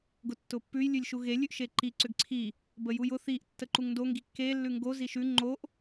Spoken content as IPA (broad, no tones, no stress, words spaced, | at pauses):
ɡʊtːʊpːʉj lʲʉlʲʃuɣe lʲʉʔʃeǃi ǀʏɡǀʰi | bəjujʊ θiʔ tːəǃuŋndo ŋɡikːe lːʉŋɡo ziʃʉ ŋ͡ǃoʔ